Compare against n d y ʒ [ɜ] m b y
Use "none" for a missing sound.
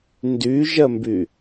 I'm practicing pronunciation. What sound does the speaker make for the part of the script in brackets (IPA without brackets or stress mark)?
ɜ